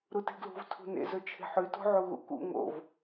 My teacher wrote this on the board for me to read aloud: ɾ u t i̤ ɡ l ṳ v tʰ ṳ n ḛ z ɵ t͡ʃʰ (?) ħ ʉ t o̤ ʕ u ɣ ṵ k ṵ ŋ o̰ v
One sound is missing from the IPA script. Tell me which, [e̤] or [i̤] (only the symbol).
e̤